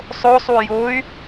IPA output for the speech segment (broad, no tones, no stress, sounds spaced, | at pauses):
sˤ o sˤ u j o y̯